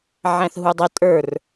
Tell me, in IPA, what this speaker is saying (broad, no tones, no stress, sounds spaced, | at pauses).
ʕ æ̃ θ ɦ u dˤ ɪ tʼ ə˞ r